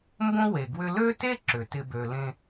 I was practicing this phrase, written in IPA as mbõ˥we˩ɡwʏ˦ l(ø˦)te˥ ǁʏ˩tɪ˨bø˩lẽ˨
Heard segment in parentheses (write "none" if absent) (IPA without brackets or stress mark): ø˥